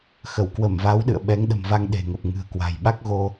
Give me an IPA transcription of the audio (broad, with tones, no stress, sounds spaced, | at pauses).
x ə˧˩ w k w ə˧˩ m v a˨˦ w ɗ ɨ̰˧˨ ə̯ ɓ ɛ˨˦ ŋ ɗ ə̤˨˩ m v a˧ ŋ ɗ e̤˨˩ ŋ ə˨˩ p̚ ŋ ɨ̤˨˩ ə̯ k w a̤˨˩ j ɓ a˦˥ k̚ ɣ o˧